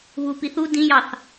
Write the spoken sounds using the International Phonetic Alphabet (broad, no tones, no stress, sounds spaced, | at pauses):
β uː p i θ u d ĩ j ɑ θ